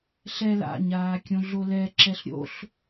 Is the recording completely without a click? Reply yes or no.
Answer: no